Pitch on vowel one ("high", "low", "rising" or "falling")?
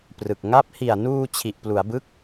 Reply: low